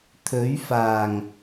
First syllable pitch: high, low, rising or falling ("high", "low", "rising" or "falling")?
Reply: rising